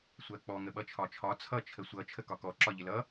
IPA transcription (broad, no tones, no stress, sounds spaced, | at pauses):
sʷ ɜ k͡p ɔ ŋ ə ɓ ʌ t͡ʃʰ ɒ t͡ʃʰ ɒ t͡sʰ ʌ t͡ʃʰ ə sʷ ʌ t͡ʃʰ ə k ɒ k ɔ ǁ ɒ ʎ ɪ l ʌ